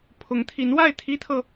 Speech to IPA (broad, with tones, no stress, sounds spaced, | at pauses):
pʰ ʊ˧˥ ŋ t̪ʰ i˧˥ n w a˥˩ ɪ̯ t̪ʰ i˥ t̪ʰ ɤ˨